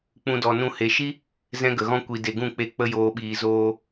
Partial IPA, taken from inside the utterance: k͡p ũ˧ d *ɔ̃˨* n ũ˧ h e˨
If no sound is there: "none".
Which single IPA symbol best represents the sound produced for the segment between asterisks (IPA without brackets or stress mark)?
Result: ɔ˨